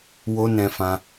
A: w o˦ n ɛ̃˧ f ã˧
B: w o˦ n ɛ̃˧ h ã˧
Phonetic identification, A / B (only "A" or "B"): A